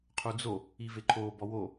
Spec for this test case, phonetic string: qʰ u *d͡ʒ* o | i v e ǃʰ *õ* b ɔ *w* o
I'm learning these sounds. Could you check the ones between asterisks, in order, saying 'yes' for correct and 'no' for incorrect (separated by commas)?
no, no, yes